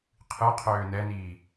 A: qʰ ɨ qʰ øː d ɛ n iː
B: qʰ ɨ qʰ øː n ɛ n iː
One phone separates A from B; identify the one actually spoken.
B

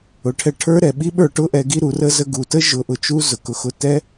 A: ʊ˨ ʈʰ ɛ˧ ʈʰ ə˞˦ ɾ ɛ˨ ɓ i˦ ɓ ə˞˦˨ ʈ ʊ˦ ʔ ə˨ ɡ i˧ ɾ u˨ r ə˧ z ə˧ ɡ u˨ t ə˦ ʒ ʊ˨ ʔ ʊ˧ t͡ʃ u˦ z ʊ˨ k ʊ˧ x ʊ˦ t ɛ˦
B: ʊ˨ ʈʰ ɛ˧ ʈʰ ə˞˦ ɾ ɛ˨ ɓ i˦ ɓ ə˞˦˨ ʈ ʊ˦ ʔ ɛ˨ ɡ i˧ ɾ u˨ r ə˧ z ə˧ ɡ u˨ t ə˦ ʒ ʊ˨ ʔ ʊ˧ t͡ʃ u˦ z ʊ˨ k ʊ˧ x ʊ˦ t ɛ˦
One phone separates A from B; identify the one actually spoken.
B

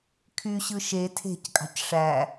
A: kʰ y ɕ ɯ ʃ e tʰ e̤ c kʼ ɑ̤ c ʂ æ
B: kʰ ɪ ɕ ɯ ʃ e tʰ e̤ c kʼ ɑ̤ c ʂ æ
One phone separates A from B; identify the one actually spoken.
A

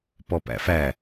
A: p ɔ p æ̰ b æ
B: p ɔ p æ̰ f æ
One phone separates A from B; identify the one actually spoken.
B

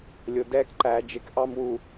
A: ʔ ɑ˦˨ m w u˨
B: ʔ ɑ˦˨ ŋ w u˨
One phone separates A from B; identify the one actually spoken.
A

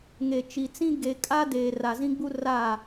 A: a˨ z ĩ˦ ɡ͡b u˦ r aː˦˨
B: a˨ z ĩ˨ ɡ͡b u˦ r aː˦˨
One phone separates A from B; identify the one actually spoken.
A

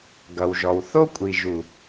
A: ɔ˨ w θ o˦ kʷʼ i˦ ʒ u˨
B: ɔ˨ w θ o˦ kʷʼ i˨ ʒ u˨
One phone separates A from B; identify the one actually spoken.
B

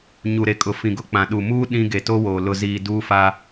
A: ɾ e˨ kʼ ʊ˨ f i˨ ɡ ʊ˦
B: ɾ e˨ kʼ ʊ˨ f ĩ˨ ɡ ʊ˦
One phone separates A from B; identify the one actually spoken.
B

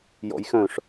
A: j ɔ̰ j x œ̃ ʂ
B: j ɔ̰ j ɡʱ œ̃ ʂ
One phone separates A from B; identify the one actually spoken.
A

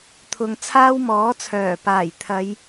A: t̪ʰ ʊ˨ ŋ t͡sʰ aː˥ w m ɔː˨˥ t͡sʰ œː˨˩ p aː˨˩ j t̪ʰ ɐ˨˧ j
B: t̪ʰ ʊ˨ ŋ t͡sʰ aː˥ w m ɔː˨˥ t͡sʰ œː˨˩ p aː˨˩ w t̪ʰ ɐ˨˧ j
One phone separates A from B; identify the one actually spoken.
A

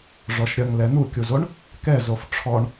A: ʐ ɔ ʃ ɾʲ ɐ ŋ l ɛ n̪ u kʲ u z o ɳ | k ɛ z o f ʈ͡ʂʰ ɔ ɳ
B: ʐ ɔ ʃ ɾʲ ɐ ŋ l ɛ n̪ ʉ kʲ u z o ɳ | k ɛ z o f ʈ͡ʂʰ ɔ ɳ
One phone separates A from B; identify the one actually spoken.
A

